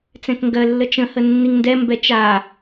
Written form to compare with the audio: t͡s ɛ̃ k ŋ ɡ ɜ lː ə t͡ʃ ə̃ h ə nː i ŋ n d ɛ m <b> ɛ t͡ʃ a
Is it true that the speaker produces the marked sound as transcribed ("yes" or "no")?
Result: yes